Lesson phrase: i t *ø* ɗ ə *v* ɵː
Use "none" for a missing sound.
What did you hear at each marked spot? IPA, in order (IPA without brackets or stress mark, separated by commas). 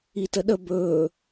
ə, b